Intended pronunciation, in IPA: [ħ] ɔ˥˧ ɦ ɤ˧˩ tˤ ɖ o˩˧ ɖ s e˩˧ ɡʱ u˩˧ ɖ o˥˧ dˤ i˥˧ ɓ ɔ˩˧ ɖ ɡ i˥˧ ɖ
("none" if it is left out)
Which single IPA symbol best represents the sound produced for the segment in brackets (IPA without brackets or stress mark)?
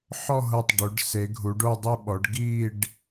ħ